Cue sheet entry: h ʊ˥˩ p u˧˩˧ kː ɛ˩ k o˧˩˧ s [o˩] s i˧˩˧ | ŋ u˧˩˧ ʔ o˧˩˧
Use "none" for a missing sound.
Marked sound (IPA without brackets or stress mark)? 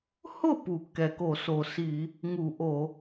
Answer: o˩